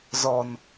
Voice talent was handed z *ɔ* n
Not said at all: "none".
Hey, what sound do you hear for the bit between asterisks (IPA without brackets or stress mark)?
ɔ